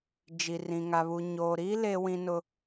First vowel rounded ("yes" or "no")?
no